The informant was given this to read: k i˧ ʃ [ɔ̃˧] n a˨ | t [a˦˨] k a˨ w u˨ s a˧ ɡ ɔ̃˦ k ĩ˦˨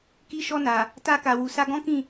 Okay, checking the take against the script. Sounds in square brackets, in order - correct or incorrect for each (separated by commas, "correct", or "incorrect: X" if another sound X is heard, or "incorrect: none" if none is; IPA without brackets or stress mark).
incorrect: ɔ˧, incorrect: a˧